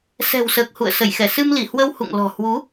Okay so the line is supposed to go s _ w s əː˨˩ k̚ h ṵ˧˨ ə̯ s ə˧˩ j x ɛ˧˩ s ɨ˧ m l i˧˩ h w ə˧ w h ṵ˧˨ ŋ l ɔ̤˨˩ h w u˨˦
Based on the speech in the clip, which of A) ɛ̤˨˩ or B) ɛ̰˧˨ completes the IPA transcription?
A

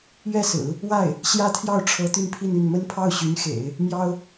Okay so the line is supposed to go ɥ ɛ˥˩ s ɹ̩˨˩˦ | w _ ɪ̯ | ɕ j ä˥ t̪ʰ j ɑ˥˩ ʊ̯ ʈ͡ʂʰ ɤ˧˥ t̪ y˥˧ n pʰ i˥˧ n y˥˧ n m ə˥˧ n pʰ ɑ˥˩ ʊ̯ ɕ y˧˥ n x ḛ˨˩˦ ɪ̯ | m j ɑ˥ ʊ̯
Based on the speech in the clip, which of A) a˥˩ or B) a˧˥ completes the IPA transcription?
A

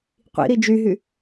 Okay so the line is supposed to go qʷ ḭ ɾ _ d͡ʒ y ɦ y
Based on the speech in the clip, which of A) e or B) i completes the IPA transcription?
B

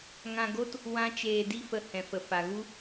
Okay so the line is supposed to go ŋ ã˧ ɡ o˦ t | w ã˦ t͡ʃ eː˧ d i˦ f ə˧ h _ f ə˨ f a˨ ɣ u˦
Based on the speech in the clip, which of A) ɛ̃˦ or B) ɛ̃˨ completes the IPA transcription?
B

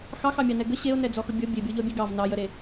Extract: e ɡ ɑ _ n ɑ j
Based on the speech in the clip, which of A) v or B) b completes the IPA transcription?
A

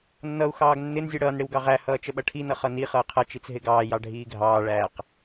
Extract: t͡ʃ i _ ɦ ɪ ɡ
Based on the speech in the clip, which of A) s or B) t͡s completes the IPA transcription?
B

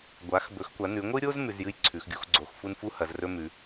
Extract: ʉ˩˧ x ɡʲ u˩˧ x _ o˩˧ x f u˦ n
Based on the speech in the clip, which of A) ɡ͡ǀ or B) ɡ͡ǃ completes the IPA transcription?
A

